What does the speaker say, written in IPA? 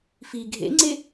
f i ɡʱ ḛ ŋ͡ǀ e

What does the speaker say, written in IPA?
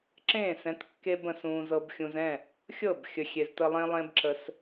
ǁ ẽː˦˨ s ɛ̃˨˦ t kː e˦ b ə̃˨ s ũː˧ z ɤ˨ b xʲ ũ˨ z ɛ̃˦˨ | xʲ ɤ˦˨ b xʲ ə˨ xʲ e˨ z t ə˧ lˠ ẽ˦ lˠ ẽ˦ b ǁ ə˧ s

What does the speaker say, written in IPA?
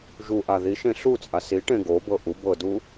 ʒ u ʔ a ð i ʃ ẽ ɬ u t͡sʼ a s i ʈ ẽ ɡ o b ɤ ʔ u b ɤ d u

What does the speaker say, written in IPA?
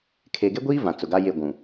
kʰ eː˨ ɡ e˦ ɡʷ iː˦ v ã˨ t͡s ʊ˨ ɡ a˦ j e˦˨ ɡʷ ũ˨

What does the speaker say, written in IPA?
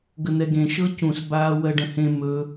ɡ ə n̪ ɛ ɡ ẽ ʃ ɤ c ũ s b aː w ɜ ɖ ə̃ h ẽ m ɵ

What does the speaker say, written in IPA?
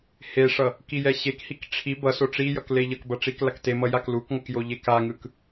h e ʂ ʌ | k i j ɛ ɕ e k h i k ʈ͡ʂʰ i b ʌ s o ʈ͡ʂ i j ʌ k l e ʎ ʌ k b ʌ ʈ͡ʂ i k l a k t e m ʌ j a k l u k ŋ ʌ k j o ʎ e k a ŋ ɯ k

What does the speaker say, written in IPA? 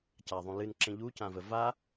c a ðˤ ũ l ɨ n ǁ ẽ ʎ u c ã v ə v a

